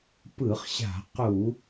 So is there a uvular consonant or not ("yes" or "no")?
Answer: yes